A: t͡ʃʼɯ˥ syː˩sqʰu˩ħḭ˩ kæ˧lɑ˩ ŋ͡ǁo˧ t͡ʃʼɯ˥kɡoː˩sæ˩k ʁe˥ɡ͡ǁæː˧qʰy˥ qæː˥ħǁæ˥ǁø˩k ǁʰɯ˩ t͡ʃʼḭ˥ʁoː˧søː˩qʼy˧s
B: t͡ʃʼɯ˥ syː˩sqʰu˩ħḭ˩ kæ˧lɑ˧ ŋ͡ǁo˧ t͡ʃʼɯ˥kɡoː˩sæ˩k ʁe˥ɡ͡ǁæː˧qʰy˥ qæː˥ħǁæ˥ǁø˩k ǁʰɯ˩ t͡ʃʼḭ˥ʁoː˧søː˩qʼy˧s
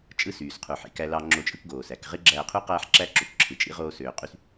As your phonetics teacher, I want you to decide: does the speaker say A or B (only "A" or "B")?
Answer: B